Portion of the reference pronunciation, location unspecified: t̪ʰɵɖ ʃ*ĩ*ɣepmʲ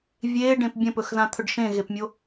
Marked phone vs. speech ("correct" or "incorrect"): incorrect